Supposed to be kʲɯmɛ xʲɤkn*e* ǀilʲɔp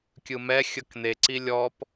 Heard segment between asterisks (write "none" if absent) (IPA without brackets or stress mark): e